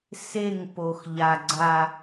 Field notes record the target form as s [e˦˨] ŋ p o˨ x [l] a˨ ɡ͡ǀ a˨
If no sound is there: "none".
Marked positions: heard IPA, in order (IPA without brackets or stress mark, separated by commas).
e˦˨, ʎ